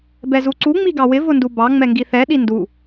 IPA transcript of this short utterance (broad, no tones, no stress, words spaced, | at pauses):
bɛzuǀu ŋ͡miɡɑwɪ vʊndubɑ ŋ͡mɛŋɡiθɛ ɗindu